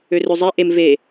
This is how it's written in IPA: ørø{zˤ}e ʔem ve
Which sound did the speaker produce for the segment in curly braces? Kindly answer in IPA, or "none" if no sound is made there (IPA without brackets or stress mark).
zˤ